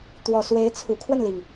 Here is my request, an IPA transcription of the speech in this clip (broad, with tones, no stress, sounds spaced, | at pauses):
t̪ w ɔ˨˩ s w e˧˥ ɪ̯ t͡sʰ u˨˩ kʰ w ə˥˩ n l i˩ ŋ